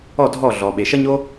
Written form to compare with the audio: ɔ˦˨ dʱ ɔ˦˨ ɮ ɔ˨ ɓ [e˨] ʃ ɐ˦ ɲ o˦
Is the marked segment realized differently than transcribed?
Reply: no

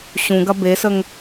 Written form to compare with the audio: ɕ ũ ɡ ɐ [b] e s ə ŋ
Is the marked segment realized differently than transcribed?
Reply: no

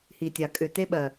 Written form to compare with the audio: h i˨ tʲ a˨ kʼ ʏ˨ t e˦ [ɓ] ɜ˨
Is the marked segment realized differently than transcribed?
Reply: no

